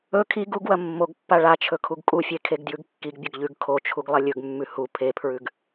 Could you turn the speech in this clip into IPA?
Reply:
ɵ kʰ i ɡ u ɡ w ɐ mː o ɡ pː a ɭ a t͡ʃʰ ɵ kʰ u ɡ kʼ u fʲ e kʰ e ɡ d j ʉ ɡ kː i ɡ bʲ ɵ ɡ ʎ ʉ ɡ kʰ o t͡ʃʰ u ɡ lˠ ɐ lʲ ɵ ɡ mː ʉ h u pʰ e pʰ ɹ ʉ ɡ

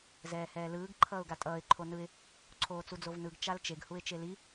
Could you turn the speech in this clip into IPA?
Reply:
z ɛː h ɛː l ɯː ɡ ǃʰ ʌː ʊ̯ ɡ a tʼ ʌː ɪ̯ ǃʰ o n ɯ ɪ̯ | ǀʰ oː t͡s u d͡z o v n ɯ ɡ t͡ʃ a l t͡ʃ e ɡ h u ɪ̯ t͡ʃ e l i

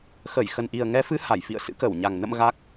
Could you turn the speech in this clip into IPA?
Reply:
x ə˧˩ j x ə˨˩ n ʔ i˨˩ ə̯ ŋ ɛ˨˦ f ɨ˨˦ h a˧˩ j f ḭ˧˨ ə̯ s ɨ̰˧˥ k ə˧˩ w ɲ a˨˩ ŋ n ə̰˧˨ m ɣ a˦˥ k̚

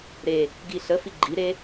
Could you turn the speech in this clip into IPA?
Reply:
ɾ e | ɡ i ɬ ə f i ɡ͡ǃ i ɾ e

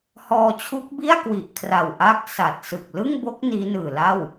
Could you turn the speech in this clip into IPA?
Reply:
h ɔː˧ t͡ɕʰ u˦˥ k̚ b i˥˩ a̯ k w i˨˩ ʔ kʰ r a˨˩ w ʔ a˥˩ k̚ s a˨˩ t̚ s ɯ˨˩ k̚ l ɯ˥˩ ŋ b o˦˥ k̚ n iː˦˥ n ɯː˨˩ l a˥˩ w

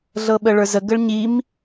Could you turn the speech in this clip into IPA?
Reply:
ɮ ɤ ɓ ə ɭ ə˞ z ə ɡ ə ɭ ɲ i m

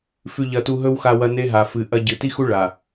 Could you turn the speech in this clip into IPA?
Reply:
f ʉ˨ ʎ ɐ˨ t u˨ ɦ ɵ˦ w x a˨ w ɐ˨ n e˦ ɦ a˨ f ɨ˨ ʔ ɐ˦ ɟ ɨ˨ t i˦ x u˦ ɭ a˨

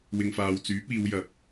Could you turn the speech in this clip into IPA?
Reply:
w ɪ˨ ŋ f aː˨ w t͡s yː˨˥ p̚ iː˨˧ w j ɐ˨ p̚

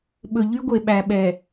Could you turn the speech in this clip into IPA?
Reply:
ɓ ɵ˨ ʎ y˦ ɡʷ e˨ ɓ æ˨ ɓ ɛ˨

